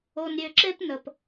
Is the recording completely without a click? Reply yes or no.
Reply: no